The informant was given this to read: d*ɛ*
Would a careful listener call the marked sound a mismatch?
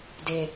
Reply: yes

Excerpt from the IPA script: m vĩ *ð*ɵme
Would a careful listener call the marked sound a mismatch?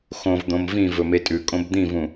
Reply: yes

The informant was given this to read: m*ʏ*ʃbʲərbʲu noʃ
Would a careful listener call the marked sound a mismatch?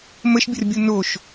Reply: yes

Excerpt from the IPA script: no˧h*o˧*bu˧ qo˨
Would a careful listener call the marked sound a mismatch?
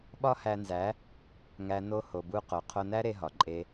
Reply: yes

